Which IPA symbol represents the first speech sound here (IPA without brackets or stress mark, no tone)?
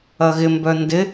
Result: ɐ